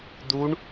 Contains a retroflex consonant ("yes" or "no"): yes